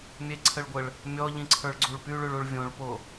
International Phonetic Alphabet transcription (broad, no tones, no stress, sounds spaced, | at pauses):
mʲ e ǀʰ ə ɭ ɡʷ ə ɭ | mʲ ɔ ʎ ĩ ǀʰ ə˞ ɭ ɡ͡ǀ u ɭ p y ɭ ʉ ɭ u ɭ vʲ õ ɭ p o